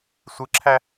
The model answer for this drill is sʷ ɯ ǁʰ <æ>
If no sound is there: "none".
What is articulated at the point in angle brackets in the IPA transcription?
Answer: æ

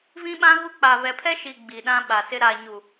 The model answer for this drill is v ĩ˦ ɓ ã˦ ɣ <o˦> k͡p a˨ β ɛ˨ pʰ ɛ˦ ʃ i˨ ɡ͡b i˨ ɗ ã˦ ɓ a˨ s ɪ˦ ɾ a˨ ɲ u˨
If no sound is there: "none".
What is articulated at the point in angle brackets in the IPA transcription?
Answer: u˦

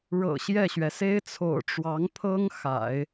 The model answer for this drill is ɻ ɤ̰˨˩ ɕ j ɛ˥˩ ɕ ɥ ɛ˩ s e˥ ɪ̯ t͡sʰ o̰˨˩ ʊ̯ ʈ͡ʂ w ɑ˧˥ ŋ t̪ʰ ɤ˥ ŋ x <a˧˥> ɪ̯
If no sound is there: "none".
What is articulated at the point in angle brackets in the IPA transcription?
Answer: a̰˨˩˦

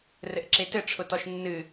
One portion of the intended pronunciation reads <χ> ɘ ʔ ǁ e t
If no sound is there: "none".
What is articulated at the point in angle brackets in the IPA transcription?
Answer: r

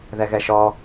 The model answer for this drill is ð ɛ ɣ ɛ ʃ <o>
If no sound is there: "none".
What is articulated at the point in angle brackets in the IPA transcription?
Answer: ɔ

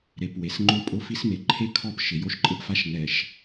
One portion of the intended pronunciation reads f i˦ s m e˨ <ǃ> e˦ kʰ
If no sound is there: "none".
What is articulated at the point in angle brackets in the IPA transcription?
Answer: ǃʰ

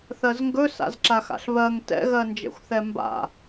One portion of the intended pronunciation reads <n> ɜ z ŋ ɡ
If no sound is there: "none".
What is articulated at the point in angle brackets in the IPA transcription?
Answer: θ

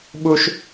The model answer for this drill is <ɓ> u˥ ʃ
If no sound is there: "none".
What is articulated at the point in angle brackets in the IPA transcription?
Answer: ɓ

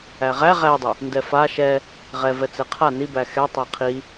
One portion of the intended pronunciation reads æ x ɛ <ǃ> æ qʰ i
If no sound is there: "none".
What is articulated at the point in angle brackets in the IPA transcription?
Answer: tˤ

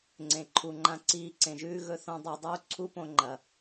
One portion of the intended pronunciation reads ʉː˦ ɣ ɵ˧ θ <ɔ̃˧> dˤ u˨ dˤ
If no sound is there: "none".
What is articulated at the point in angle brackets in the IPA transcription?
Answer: õ˧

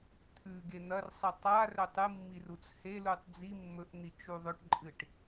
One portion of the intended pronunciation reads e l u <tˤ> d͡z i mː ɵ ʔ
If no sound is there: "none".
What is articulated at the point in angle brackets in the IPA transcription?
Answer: tˤ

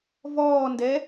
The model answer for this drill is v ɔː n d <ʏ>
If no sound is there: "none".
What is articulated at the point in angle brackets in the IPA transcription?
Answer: ɛ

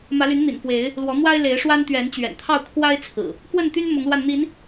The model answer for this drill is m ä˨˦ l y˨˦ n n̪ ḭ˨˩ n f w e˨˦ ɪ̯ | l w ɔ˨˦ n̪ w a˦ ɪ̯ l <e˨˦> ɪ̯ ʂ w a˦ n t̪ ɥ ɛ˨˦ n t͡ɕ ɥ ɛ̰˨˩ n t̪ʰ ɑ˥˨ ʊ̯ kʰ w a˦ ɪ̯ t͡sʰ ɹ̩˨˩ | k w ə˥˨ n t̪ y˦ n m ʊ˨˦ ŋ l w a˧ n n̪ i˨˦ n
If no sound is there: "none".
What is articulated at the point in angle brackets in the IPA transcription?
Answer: e˨˦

